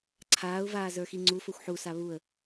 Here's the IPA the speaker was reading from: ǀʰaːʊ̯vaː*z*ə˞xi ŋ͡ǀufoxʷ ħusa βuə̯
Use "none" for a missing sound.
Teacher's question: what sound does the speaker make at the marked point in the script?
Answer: z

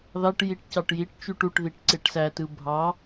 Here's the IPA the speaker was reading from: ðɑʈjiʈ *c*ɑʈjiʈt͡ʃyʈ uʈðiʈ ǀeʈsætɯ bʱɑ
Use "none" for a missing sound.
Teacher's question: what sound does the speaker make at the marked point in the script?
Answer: c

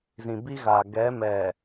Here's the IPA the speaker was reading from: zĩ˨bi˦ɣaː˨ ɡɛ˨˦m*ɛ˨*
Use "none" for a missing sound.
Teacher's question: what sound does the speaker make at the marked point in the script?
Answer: ɛ˨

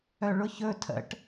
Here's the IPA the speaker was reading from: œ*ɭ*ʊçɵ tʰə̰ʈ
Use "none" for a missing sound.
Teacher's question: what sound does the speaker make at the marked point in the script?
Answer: ɭ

